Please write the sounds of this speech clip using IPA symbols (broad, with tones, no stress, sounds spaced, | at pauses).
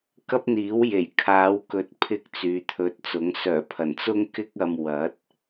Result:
k ɐ˥ p̚ n̪ iː˨˥ w j e˨˩ j kʰ aː˨˧ w k ɵ˨˥ t̚ pʰ ɪ˧ k̚ t͡s yː˨˧ t̪ʰ ɵ˧ t̚ t͡s ʊ˨˥ ŋ s œː˨˩ pʰ ɐ˨˩ n t͡s ʊ˥ ŋ k ɪ˥ k̚ ɐ˧ m w ɐ˨˥ t̚